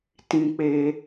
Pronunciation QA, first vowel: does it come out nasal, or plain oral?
nasal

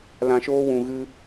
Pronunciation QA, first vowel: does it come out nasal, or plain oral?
nasal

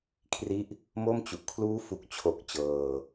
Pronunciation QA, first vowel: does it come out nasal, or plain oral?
oral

